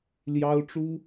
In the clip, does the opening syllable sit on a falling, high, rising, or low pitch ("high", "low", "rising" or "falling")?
high